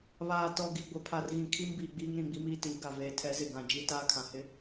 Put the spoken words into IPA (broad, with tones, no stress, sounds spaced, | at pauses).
β aː˨ t ɔ˨ ɡ i˨ ɡʷ ɪ˨ pʰ a˨ r ɣ ĩ˨ kʰ i˦ m b iː˨ ɡ͡b iː˦ ŋ ɾ ĩ˨ ɡ͡b i˦ m iː˦ t iː˨˦ ɡ a˨ v eː˨ tʰ ɛ˨˦ z ɪ˨ ɡ ã˨ d͡ʒ i˦ t aː˦ kʰ ã˨ h ɪ˦